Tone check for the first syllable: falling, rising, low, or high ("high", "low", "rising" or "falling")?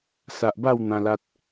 low